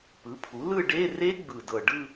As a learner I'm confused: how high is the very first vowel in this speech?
high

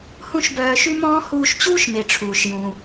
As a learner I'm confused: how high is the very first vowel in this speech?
high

